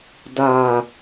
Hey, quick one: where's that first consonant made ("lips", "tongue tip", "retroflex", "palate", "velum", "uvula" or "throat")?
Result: tongue tip